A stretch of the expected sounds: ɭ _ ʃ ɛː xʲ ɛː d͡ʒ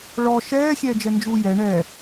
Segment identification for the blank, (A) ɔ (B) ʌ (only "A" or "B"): A